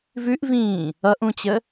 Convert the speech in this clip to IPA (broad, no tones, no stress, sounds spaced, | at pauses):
v ʉ ʔ v ĩː | ʌ ʔ ũ t͡ɕ ə